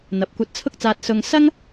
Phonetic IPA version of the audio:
n̪ ɐ˨˥ p̚ kʷ ɐ˧ t̚ t͡sʰ ʊ˥ k̚ t͡s aː˧ t̚ s ʊ˥ ŋ s ɐ˥ ŋ

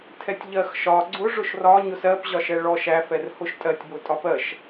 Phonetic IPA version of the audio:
tʰ ɛ tʲ ʎ ɜ x ʃ ɒ ɡ͡ǀ ʊ ʐ ʊ ʃ r ɒ ɲ ʊ s ɜ p ʑ ɒ ʃ ɛ ɭ ɔ ʃ æ f ɛ r h ʊ ʃ tʼ ɜ tʲ b ʊ tʼ ɒ p ɜ ʃ

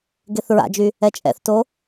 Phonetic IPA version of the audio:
ɡ e θ ɹ a̰ d͡ʒ y | ɛ t͡ʃʼ ɛ̰ θ t o

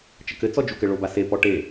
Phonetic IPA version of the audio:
t͡ʃ ɘ k ɘ t͡s ɔ d͡ʒ u k ɘ ɭ o b a s e p ɔ ʈ e

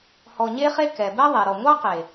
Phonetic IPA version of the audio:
h ɔ˧ ɲ e˦ χ e˦ k ɛ˨ b ɛ˦ ðˤ e˨ ɾ ɔ˨ ŋʷ ɑ˦ q e˨

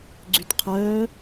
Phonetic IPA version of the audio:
ɡ͡ǀ y t qʰ œː

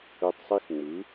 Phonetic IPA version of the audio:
ø˧ tˤ sˤ i˦˥ x ŋ͡m ɯ˩˥

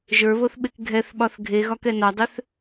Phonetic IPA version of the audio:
ʒ ə˞ β o θ ɓ e k ɡʱ ɛ θ ɓ ɒ θ ɡʱ e ɣ ɒ k ɛ n ɒ dˤ ø θ

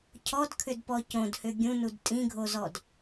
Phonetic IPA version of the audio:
cʰ ɔ d kʰ ʏ d p ɔ c õ d h ʏ ɡʲ ũ n u d tʼ ĩ ɡʱ o z ɔ d

